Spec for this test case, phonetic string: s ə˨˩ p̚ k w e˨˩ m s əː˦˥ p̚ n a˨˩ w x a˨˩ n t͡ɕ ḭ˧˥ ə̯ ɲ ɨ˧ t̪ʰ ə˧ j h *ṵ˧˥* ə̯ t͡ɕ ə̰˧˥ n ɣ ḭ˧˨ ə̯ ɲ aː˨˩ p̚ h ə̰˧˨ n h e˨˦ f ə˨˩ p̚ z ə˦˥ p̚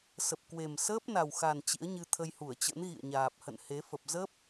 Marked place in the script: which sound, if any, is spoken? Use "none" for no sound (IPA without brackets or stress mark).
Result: u˧˩